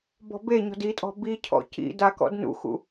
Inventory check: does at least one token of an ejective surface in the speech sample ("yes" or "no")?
yes